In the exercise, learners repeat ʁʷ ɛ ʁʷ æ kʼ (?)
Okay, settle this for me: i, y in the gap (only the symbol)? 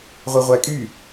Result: y